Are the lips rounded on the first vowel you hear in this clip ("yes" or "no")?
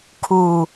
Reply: yes